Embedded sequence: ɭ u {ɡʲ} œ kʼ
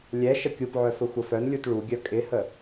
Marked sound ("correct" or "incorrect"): correct